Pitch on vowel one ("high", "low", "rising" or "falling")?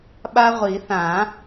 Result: high